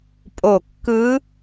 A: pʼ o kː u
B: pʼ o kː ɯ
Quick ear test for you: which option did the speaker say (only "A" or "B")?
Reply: B